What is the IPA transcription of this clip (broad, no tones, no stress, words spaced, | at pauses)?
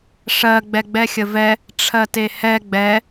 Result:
ʂɜ ɡ͡bɛɡ͡bɛxʲəvɛ | ʈ͡ʂʰɜtehɛ ɡ͡bɛ